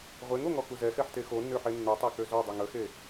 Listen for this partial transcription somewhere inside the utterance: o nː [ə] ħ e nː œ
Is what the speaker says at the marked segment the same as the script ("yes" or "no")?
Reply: no